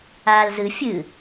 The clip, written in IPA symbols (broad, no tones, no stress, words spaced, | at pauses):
aːlzɨ fʲɨ